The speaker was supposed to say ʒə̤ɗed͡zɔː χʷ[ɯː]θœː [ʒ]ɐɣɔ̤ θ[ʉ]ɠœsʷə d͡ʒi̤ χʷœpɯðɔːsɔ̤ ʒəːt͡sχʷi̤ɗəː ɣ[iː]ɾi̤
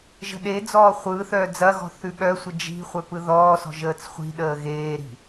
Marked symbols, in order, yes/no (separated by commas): yes, no, yes, no